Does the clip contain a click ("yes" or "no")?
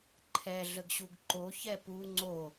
yes